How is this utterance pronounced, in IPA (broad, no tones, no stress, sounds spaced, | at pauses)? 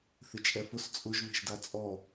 θ ɪ t͡ʃʼ ɛ f ʊ s t͡sʼ ʊ ʒ β e̤ ʒ d a t͡sʼ ɔ